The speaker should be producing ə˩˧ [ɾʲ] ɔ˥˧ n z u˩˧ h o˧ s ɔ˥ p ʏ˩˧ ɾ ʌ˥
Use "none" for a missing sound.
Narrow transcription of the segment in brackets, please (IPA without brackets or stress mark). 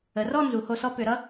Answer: r